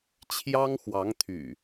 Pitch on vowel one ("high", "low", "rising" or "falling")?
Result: high